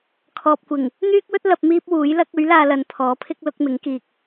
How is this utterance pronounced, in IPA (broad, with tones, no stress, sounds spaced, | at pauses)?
kʰ ɔː˨ p̚ kʷ ɪ˨˩ ŋ | n̪ yː˥ k̚ w ɵ˥ t̚ l ɐ˧ p̚ m iː˥ p̚ w uː˨˥ j l ɐ˥ k̚ ɵ˨˥ ɥ l aː˧ l ɐ˨ n pʰ ɔː˨˥ pʰ ɪ˥ k̚ l ʊ˨˥ k̚ m ɪ˨˥ ŋ k iː˨ k̚